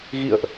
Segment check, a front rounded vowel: absent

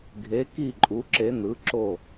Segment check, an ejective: present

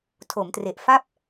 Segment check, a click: absent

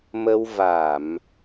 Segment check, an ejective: absent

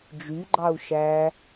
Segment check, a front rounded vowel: present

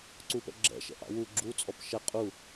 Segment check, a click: present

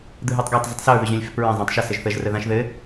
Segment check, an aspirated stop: absent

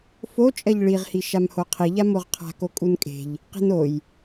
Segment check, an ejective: present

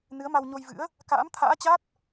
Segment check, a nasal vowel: absent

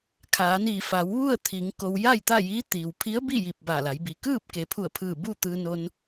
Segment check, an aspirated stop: present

